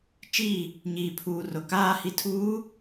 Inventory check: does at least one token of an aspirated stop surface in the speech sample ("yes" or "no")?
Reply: yes